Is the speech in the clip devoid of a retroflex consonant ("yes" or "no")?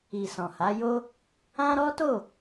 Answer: yes